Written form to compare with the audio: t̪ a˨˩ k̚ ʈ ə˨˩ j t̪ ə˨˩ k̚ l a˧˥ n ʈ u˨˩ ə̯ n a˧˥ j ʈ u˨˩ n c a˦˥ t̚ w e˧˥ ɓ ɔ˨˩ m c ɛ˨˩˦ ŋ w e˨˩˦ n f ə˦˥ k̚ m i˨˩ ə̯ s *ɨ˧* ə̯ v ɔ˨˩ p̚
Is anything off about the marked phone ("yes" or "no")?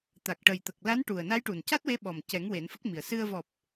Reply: no